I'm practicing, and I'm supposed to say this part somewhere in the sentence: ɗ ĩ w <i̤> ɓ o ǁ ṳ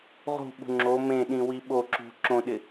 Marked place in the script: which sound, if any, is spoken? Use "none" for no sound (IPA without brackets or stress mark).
i